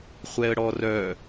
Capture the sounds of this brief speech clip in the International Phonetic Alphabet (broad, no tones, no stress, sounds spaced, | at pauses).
χʷ ɛ ə̯ ɽ ɔ r œ